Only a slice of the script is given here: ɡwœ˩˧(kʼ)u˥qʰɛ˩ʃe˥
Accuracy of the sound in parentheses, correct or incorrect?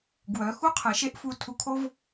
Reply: incorrect